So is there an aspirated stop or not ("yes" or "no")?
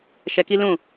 no